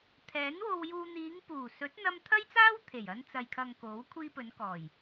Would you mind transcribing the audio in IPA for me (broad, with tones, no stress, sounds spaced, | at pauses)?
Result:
t̪ʰ ɛː˨˥ n w o˧ w j uː˧ n̪ iː˨˧ ŋ p uː˨˩ s ɵ˨˥ t̚ n̪ ɐ˧ m t̪ʰ ɐ˥ j t͡s aː˥ w t̪ʰ e˨˩ j ɐ˧ n t͡s ɐ˨ j kʰ ɐ˨ ŋ k o˨˥ w kʷʰ iː˧ p ɵ˨˧ n k ɔː˨˩ j